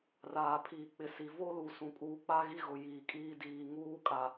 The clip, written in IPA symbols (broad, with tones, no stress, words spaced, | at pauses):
raː˨pʰiː˨k͡pɪ˨ si˨vo˦lu˨ sũ˨kʼuː˨k͡pa˦ ɣi˦ɣʊ˨ jiː˨kʼiː˦ diː˨ŋuː˦kʼa˨